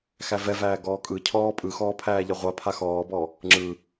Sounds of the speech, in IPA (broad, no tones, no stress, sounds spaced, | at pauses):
x æ v ɛ v æː ɡ ɔː kʼ ɯ cʰ ɔː pʼ ɯ x ɔː pʰ æː ʎ ɛ ʁʷ a pʰ a x ɔː b ɔ | ŋ͡ǁ ɯ